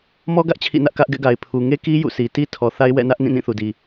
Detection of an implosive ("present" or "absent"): absent